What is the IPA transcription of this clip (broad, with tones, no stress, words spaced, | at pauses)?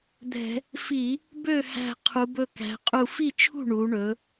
d̪ɛ̤˧˩˧ | fi˧˩˧ | bø˥˩ hæ̤˧˩ qʰu˩˧bɵ˧˩kæ̤˩˧qʼu˧˩ fi˥˩t͡ʃʰṳ˥˩ ɳu˩˧ɳɵ˩˧